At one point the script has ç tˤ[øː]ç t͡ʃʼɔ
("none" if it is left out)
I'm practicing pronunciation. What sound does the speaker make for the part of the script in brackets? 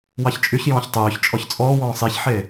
øː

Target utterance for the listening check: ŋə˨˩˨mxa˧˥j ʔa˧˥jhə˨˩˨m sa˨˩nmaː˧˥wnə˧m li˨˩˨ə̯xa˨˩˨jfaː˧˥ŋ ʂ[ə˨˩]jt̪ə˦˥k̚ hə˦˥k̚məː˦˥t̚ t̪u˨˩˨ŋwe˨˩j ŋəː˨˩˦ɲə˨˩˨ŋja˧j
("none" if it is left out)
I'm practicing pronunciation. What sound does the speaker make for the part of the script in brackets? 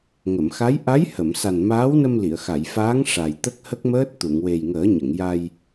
a˨˩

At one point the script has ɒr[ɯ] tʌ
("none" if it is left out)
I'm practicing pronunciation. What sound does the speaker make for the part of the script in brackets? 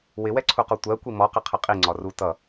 u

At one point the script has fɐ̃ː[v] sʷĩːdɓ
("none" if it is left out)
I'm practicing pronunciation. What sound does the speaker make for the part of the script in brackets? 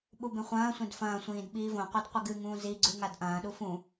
none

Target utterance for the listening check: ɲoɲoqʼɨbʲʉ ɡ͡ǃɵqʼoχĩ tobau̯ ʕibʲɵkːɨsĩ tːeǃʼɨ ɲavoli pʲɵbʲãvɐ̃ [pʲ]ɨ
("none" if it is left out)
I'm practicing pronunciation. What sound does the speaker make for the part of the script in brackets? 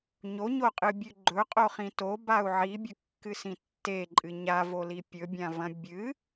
bʲ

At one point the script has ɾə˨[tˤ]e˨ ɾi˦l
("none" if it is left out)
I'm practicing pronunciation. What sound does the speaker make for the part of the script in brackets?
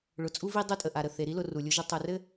θ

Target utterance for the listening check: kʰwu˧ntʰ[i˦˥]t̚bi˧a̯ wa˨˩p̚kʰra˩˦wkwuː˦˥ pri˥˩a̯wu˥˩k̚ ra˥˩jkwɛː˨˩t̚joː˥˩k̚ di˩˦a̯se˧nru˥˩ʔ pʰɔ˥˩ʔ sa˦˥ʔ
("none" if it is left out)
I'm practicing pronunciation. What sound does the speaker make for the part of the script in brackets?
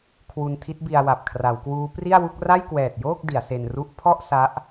i˦˥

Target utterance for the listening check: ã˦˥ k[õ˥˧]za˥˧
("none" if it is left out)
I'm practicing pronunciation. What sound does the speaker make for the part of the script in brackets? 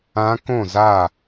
õ˥˧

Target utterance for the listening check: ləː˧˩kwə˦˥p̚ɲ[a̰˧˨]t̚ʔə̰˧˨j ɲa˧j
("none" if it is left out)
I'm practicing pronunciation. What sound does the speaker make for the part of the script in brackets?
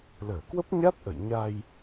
a˦˥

